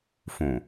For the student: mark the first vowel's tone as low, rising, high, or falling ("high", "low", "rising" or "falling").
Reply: low